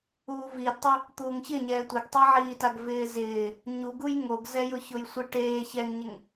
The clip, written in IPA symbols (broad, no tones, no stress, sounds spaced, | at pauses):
uː v iː d tˤ u | t̪ uː ŋ ç ɪ ɲ ɛː tʷ ɪ ɡ tˤ e ʕ iː t a ɡ v ɪː z ɪː | ɲ u ɡ u j ŋ o ɡ z ɛ j ʊ ç ʊ j sʷ ɪ ʈ eː ç ɛ ŋ ɲ ɪ ŋ